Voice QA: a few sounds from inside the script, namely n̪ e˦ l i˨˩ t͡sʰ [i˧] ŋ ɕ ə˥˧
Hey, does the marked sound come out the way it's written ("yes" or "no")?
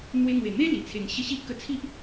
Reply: no